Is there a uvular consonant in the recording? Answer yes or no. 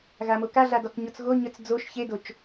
no